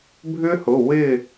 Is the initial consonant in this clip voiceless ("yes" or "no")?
no